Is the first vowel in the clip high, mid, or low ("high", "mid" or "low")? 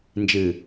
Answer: high